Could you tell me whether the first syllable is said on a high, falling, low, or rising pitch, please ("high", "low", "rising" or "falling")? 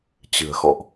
low